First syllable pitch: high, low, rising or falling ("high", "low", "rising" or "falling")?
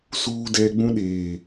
high